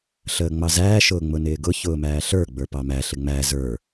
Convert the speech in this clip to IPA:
ɬəːŋ͡mɑzæː ʃʊːŋ͡mʊnɪːɡʊ çʊːmæːɬə˞ ɡ͡bə˞pɑmæ ɬɪŋ͡mæ zə˞

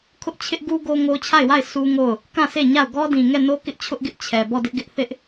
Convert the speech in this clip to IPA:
kʰʊ˦ʔ t͡ɕʰɪ˦ʔ ɡu˦ ɡo˦ŋo˦ t͡ɕʰa˦˨ɪ̯wa˦˨ɪ̯ sʰu˦ŋo˦˨ʊ̯ | kã˦˨se˦˨ɲa˦˨ʊ̯ ɡɔ˦dĩ˨ ŋɛ˦˨no˦ kɪ˦ʔt͡ɕʰʊ˦ʔɡɪ˦ʔ t͡ɕʰɛ˨ bɔ˦˨dɪ˦ʔ ɡɪ˦ʔ θɪ˦ʔ

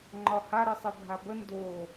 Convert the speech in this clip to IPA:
ŋ͡ǃɒha ɾɨsˤɨbʱabə ndo

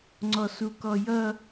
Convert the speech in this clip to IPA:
ŋ͡ǀɔsukɔjʌ

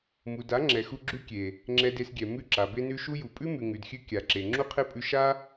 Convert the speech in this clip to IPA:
mu˨da˨˦ ŋ͡ǁɛ˨xu˧ ɡ͡ǁʉ˦ kʲe˨ | ŋ͡ǁɛ˧de˧sɡʲɛ˨ mʉ˧ǁa˨be˧nʉ˧ ʃu˦ju˨ pʼʉ˦mʉ˨ ŋʉ˨dxʲʉ˧ kʲa˨ ǁe˨ ŋ͡ǁu˦qʰe˦pʼʉ˧ ʃa˦

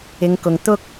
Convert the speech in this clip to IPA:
ɪ˨˧ŋkʊ˨ŋ t̪ʊ˥k̚

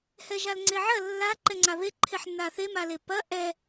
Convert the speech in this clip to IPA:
hɛʒalŋ͡ǀeʕɐ lːa ǃɛŋ͡ǀaβe ǃʰeħnːaθe malepɐ ʔɛ

